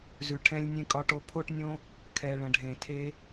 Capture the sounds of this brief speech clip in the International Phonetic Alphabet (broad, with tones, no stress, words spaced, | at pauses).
zʉ˨ʈʰɛ̃˧lʲ nʲẽ˧kʼɒ˧ʈo˧ pʰo˧ʈnʲõ˧ | kʰɛ˨ ɭə̃˨ɖʱẽ˨tʰe˧